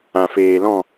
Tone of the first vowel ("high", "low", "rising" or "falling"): low